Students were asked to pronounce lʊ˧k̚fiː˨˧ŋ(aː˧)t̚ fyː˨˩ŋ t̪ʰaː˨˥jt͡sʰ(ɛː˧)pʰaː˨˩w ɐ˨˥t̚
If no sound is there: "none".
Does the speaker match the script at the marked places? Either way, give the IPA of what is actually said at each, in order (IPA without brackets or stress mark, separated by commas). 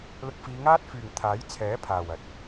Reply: aː˥, ɛː˨˥